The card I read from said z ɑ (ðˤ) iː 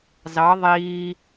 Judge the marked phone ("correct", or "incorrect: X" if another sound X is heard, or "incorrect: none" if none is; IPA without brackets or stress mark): correct